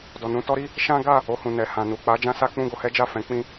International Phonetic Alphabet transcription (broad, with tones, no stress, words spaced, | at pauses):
dɔ˨nũ˧tɔ˦ɾi˦ | ʃã˦ ɡa˦˨ | o˧hũ˨nɛ˨ hã˨ nu˨k͡pa˨˦ d͡ʒã˦sa˦ k͡pũ˦˨ɡo˧hɛ˦d͡ʒa˦˨ fɛ̃˨˦ k͡pĩ˦